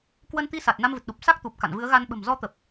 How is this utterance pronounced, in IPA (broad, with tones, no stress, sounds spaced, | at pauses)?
k w ə˧ n t̪ i˧ s a˨˩ t̚ n a˧ m v ɨ˨˩ t̚ ɗ u˨˩ p̚ s a˦˥ k̚ t̪ u˨˩ p̚ k a̰˧˨ n v ɨ˨˦ ə̯ ɣ a˧ n ɓ ə̤˨˩ m z ɔ˨˦ t̪ ə˨˩ p̚